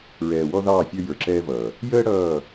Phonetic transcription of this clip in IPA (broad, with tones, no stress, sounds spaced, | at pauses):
ɹ ɛː˨ w ɔ˦ ð ɑː˦˨ fʲ ə˞˦ j ə˞˨ ǁ ɛː˦ v ʌː˨ | j əː˦ ɽ ʌː˦˨